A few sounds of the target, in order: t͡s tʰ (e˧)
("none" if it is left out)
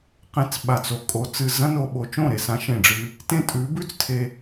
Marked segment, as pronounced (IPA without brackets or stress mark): e˧